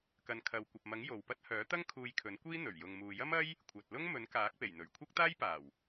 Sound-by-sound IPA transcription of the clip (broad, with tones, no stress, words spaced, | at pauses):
kɐ˨nkʰɐ˨wkʷɐ˨p̚mɐ˨˥ŋ jo˨wpɐ˥t̚ hœː˨˥t̪ɐ˥ŋ kʰuː˧jkʰɵ˨˥nkʷiː˥ n̪ɵ˨˩ɥ jʊ˨ŋmuː˨jɐ˥m ɐ˥j | kʷʰɐ˨t̚lʊ˥ŋ mɵ˨˥nkaː˨˥k̚pe˨˩j n̪ɵ˨˩ɥkʷʰɐ˥k̚t̪aː˥jpaː˨˩w